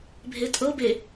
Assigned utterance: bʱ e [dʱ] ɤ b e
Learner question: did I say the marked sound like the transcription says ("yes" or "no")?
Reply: no